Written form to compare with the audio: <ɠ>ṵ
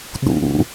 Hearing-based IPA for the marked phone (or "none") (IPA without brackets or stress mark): ɗ